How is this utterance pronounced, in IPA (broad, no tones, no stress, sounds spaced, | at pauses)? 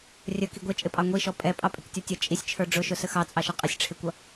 rʲ ə k i ɡʷ ɛ t͡ʃʼ ɪ pʼ ɑ ŋʷ i ʃ ɔ pʼ ɛ pʼ ɑ pʼ ɪ k tʲ ɔ tʲ ə t͡ʃʼ i sʲ t͡ʃʰ ə˞ ɖ͡ʐ ʊ ʃ ʊ s ə x ɑ t͡sʼ ɑ ʃ ʌ qʼ ɪ sʲ ʈ͡ʂʰ ɪ kʷ ʌ